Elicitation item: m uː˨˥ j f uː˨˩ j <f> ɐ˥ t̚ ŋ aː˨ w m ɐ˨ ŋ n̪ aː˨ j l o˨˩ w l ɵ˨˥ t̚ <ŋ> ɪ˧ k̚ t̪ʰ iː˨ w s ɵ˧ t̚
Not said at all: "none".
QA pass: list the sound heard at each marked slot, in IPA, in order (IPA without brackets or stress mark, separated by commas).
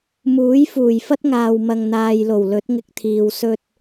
f, ŋ